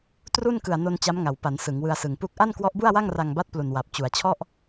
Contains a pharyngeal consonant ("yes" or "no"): no